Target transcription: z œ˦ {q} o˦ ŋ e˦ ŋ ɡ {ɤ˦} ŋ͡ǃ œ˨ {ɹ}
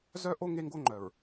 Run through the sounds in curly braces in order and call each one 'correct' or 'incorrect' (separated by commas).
incorrect, incorrect, correct